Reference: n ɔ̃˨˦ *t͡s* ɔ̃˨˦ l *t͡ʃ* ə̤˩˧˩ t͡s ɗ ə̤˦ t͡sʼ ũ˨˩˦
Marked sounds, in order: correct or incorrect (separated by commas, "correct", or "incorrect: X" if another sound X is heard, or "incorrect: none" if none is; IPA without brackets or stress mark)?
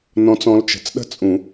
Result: correct, correct